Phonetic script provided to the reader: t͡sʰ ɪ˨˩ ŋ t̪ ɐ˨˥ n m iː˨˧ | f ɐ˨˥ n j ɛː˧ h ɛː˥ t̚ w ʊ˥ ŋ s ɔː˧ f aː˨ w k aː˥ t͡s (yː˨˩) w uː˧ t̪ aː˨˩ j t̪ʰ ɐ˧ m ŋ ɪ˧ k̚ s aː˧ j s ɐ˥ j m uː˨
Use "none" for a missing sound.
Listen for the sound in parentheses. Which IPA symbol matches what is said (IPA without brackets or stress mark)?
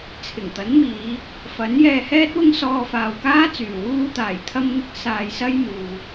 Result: yː˨˩